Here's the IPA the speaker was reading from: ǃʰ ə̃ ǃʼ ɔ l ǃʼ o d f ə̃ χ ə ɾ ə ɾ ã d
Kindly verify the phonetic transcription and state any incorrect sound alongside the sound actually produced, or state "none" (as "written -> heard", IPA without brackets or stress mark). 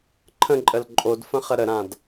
ɔ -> ə